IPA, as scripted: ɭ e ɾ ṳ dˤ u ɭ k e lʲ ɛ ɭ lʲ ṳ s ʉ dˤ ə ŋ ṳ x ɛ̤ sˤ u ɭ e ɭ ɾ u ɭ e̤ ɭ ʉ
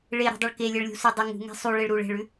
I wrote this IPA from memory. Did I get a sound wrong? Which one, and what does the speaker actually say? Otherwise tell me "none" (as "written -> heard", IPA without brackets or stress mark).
x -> ŋ